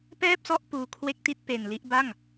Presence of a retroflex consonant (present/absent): absent